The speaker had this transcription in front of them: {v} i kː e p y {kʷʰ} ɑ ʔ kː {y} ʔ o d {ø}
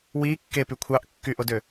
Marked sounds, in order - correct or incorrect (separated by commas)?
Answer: incorrect, correct, correct, correct